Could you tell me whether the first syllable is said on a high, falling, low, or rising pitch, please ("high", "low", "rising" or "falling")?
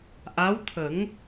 rising